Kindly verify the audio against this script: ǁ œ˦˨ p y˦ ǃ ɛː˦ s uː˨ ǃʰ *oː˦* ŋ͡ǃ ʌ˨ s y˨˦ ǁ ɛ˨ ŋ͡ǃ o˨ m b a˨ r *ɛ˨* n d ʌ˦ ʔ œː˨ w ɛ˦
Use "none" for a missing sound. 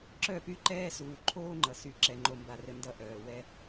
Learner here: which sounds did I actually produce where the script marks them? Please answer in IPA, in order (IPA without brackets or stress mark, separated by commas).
oː˦, ɘ˨